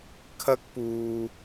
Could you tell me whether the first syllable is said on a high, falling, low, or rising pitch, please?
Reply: high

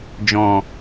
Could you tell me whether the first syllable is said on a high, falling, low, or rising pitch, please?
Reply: low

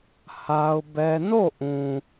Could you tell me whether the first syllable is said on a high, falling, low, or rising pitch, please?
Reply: high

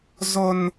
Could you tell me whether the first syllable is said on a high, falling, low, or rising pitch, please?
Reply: high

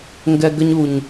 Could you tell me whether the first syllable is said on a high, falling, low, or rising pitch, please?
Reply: low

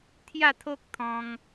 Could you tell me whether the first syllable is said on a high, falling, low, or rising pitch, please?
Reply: falling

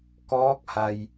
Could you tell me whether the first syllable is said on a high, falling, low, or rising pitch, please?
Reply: rising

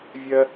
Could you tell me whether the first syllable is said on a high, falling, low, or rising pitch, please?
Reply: high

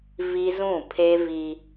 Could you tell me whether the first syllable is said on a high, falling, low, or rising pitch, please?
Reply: high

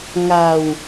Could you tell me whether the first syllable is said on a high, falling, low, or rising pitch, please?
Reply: low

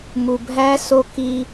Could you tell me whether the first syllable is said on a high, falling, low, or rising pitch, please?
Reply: low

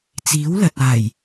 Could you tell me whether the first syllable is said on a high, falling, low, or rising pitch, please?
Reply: rising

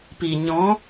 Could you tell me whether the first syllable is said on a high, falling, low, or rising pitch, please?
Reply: low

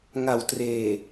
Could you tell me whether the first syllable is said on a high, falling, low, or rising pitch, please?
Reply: low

